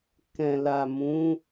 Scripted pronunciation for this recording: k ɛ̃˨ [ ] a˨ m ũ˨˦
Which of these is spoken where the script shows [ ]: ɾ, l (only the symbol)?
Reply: l